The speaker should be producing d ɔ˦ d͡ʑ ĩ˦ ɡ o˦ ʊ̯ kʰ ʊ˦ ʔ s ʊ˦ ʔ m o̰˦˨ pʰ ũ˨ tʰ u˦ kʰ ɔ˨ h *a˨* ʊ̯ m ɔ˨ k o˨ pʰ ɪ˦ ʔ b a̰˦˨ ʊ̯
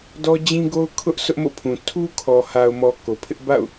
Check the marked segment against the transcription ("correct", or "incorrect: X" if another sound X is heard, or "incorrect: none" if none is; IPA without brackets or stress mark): correct